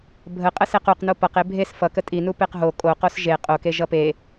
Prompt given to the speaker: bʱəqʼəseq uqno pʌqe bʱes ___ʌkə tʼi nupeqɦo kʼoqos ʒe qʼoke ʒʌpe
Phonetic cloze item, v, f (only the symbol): f